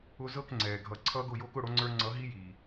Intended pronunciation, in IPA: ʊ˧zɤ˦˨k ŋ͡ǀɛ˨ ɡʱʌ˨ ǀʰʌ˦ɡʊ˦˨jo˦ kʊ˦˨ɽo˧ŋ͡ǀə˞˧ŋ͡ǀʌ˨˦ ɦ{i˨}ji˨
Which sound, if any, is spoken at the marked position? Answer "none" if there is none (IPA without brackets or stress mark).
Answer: i˦